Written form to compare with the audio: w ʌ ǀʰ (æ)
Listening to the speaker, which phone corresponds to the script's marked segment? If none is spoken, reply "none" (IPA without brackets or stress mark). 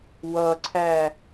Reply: æ